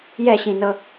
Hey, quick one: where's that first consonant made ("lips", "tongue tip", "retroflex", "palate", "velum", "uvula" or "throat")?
palate